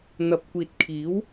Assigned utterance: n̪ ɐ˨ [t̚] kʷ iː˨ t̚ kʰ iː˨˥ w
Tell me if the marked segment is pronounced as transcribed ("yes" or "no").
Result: no